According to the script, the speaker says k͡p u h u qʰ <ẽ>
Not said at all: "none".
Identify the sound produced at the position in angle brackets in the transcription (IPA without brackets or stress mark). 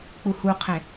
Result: ẽ